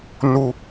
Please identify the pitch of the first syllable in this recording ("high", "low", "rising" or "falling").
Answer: high